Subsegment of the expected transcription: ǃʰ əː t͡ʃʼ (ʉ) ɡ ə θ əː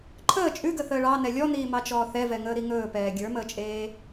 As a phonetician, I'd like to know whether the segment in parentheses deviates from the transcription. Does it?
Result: no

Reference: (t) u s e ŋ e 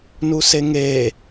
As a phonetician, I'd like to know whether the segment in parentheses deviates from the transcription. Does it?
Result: yes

